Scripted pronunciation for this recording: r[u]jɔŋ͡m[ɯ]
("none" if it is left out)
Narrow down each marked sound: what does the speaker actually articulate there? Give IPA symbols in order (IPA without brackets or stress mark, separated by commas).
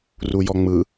u, ɯ